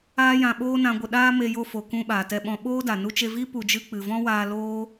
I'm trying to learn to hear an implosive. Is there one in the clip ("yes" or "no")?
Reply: yes